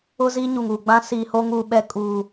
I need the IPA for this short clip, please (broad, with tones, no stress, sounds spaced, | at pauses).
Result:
ʊ˦ z iː˦ ɲ u˨ ŋ uː˨ ɡ͡b ã˦ s iː˨ h o˦ ŋ uː˨ ɓ ɛ˦ kʼ uː˨